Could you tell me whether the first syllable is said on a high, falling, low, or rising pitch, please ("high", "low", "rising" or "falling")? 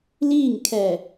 falling